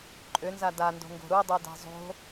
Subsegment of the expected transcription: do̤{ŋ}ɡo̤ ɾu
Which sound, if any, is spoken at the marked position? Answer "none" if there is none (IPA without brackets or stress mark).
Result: ŋ